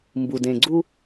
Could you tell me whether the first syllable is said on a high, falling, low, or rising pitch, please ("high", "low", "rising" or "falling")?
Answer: low